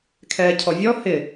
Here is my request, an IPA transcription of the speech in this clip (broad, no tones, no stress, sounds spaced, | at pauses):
kʰ ɛː cʰ ɔ vʲ ɔ h ɪ